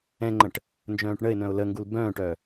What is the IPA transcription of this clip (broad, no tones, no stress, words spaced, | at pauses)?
ɛ̃ŋ͡ǃə̃ʈ | nd͡ʒœ̃ːʈɳəɪ̯nœ̃ʊ̯ ləŋɡul bœ̃ːʈœ